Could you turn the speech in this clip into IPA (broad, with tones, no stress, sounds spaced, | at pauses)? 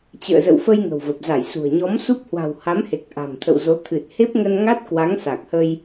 t͡ɕ ə̰ː˧˨ z ə̰˧˨ w f ə˧ j ŋ ə̤˨˩ w v ə˨˩ p̚ z a˧˩ j s ṳ˨˩ ə̯ ɲ ɔ˨˦ m s u˦˥ p̚ h w a̤˨˩ w h a˨˦ m h e˨˩ k̚ ʔ a̤˨˩ m t̪ʰ ə̰˧˨ w z o˨˦ t̪ʰ ɨ˨˩ t̚ h e˦˥ p̚ ŋ ə˧ n ŋ a˦˥ t̚ k w a˨˦ ŋ s a˨˩ k̚ h ə˧ j